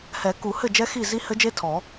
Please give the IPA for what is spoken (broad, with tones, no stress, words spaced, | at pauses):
hɛ˨˩˦ku˨˩˦hɘ˥˩ d͡ʒɛ˦˥xi˥˩ zi˦˥hɘ˦˥d͡ʒe˦˥ tʰɔ˨˩˦